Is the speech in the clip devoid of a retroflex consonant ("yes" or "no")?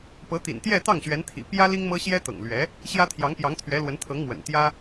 yes